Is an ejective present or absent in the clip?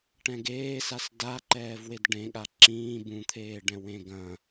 absent